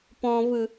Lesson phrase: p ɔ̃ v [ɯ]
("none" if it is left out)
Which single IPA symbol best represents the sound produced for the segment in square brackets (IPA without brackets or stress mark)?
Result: ɯ